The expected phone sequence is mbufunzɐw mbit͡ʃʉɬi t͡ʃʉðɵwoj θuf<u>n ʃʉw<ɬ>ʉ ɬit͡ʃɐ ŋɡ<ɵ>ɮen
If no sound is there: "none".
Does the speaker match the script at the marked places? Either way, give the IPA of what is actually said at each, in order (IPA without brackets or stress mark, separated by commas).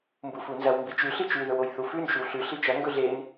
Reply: ʉ, ɬ, ɵ